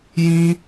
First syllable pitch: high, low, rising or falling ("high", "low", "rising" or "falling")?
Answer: high